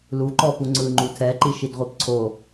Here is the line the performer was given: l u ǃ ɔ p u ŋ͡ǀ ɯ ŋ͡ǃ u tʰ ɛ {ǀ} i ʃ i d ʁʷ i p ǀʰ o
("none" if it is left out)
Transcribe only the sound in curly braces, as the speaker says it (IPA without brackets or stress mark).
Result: ǃ